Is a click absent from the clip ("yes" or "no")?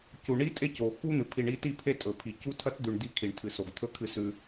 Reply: yes